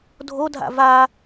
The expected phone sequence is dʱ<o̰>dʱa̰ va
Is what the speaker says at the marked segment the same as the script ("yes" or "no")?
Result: no